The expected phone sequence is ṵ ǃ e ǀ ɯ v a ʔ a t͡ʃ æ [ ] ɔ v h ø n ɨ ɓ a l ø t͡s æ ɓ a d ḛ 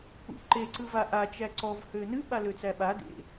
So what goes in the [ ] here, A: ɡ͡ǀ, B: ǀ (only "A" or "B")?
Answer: B